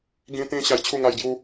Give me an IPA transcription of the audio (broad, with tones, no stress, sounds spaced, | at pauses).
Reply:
ɡ ĩ˧ t̪ ĩ˧ ɕ a˧ j t͡ɕʰ u˥˧ ŋ a˧ j ɡ j u˦